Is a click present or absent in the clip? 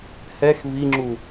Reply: present